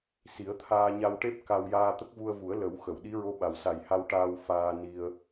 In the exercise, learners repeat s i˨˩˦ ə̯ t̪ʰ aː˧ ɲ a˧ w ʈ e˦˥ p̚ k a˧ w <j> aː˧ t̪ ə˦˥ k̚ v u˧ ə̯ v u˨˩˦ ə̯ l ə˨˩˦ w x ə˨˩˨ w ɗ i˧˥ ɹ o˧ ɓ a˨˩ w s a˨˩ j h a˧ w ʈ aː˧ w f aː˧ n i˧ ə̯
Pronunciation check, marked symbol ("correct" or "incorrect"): correct